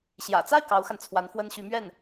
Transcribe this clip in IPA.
ɕ j ä̰˨˩ t͡s a˥˩ ɪ̯ k ɑ˧˥ ʊ̯ x a˧ n t͡sʰ w a˧˥ n f w ə˥ n ɕ y˧˥ m ɥ ɛ˥˩ n

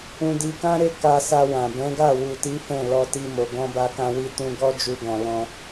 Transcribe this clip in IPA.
ũ˧ d i˧ k ã˦ ɾ e˦ k a˧ s a˧ w ã˨ b ɛ̃˨˦ ɡ a˦˨ w u˨ t i˨˦ f ɛ̃˦˨ l ɔ˧ t i˧ m o˨ ɡ ɔ̃˧ b a˧ k ã˧ w i˧ t ũ˧ ɡ ɔ˦ d͡ʒ u˧ ɡ ɔ̃˨ l ɔ̃˧

